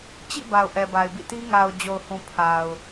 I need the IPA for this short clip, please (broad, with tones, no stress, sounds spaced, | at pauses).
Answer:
t͡ɕ ḭ˦˨ b a˨ ʊ̯ ʔ ɛ˨ b a˨ ɪ̯ b ḭ˦˨ t i˦ ŋ a˨ ʊ̯ d͡ʑ o˨ ʊ̯ h ũ˨ pʰ a˨ ʊ̯